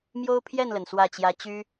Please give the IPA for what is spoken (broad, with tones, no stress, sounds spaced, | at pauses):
m j o˦ ʊ̯ pʰ j ɛ˥˨ n l ə˩ n s w ä˥˨ t͡ɕ j ä˦ t͡ɕ y˦